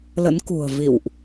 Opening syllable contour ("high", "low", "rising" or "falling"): rising